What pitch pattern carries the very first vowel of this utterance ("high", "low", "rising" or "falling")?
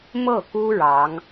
falling